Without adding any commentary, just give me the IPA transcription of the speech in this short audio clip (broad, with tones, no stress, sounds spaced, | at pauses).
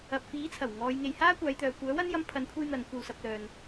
ɐ˨ p̚ f iː˨˥ t͡sʰ ɐ˨˩ w ŋ ɔː˨˧ j ŋ e˨ j h aː˥ kʷ aː˨˧ j t̪ œː˨ kʷ œː˨˥ w ɐ˥ n j ɐ˧ m pʰ ɐ˨˧ n kʷʰ e˧ j n̪ ɐ˨˧ n kʷ ɐ˨ w s ɐ˨ p̚ l œː˨ n